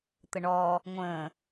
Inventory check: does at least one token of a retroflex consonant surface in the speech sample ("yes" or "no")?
yes